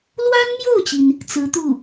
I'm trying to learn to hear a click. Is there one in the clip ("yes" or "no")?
no